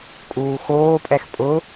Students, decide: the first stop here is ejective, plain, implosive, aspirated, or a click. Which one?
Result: ejective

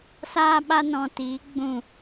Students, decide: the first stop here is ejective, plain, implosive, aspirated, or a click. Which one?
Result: implosive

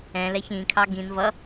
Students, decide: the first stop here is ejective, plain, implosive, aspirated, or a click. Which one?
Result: aspirated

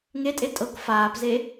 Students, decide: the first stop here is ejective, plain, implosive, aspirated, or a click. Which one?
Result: ejective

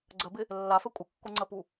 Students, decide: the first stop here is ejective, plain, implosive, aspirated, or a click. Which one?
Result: click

